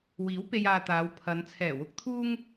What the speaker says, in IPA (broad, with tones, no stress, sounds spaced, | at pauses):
w iː˨˥ w p e˧ j aː˧ t̪ aː˨˧ w pʰ ɐ˨˧ n t͡sʰ ɛː˨˩ w ʊ˧ k̚ t̪ʰ uː˥ ŋ